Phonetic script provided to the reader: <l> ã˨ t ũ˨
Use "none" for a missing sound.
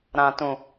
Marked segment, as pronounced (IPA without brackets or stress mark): ɾ